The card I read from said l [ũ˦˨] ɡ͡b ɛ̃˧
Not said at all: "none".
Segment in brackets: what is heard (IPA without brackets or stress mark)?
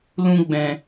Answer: ũ˦